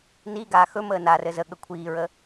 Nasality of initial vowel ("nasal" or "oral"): oral